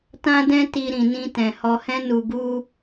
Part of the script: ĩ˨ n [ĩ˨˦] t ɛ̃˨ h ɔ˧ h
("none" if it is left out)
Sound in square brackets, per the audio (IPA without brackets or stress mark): ĩ˧